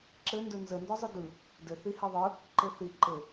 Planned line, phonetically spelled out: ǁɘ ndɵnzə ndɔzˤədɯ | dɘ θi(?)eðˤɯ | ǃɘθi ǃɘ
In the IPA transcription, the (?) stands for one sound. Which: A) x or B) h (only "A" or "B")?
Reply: B